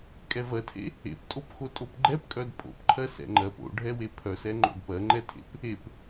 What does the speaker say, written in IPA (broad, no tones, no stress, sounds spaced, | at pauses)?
kʼ ɛ v ɜ tʰ ḛ | ḛ p tʼ o p x o tʼ o p ɡ͡ǃ ɛ p kʼ œ d pʼ o̰ p ǃʰ ɜ s ɛ̰ ŋ͡ǃ ɜ p o̰ ɖʱ ɛ w e pʰ œ s ɛ ŋ͡ǃ o̰ d p ɜ ŋ͡ǃ ɛ tʰ ḛ p | e p